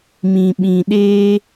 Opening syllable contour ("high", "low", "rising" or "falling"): low